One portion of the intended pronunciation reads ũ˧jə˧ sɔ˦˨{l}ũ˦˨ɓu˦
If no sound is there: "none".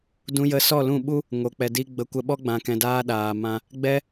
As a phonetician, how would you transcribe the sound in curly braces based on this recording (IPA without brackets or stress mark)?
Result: l